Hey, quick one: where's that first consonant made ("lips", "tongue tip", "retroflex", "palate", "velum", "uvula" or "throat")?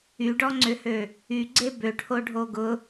retroflex